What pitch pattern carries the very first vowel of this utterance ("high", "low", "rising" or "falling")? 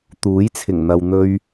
rising